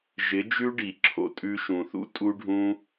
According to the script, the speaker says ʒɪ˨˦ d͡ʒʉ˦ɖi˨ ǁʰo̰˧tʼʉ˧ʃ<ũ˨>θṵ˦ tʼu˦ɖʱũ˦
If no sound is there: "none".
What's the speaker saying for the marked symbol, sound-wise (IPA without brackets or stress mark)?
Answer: ũ˨